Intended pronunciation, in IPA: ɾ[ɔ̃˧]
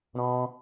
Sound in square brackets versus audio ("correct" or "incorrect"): correct